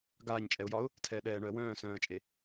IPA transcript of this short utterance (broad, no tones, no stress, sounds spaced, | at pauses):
ɡ aː ɲ t͡ʃʼ ɛ ʊ̯ j ɒ ʊ̯ | tʰ ɛː ɗ ɛː ɳ œ ə̯ w œ̃ː s œ̃ː ə̯ t͡ʃʼ e